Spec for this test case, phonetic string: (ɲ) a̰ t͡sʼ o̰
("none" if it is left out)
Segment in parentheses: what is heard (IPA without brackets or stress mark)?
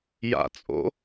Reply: j